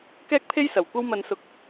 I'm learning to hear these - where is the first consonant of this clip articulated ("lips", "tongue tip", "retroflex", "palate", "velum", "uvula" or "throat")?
velum